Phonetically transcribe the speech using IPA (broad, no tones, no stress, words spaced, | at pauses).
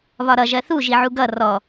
βɒɾʌ ʒɜθu ʒiʕuɡʌ rɔ